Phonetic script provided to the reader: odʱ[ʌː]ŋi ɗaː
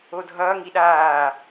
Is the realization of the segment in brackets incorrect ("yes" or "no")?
no